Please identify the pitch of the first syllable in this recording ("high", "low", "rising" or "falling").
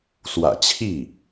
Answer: low